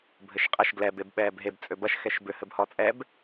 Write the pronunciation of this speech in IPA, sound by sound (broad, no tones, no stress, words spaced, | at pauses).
bʱɘʃqʼɐʃ ɡlɛb ebɓɛːbɦeb t͡sʼøbɐʃ xɛʃbʏ hɘbhɔt͡sʼɛb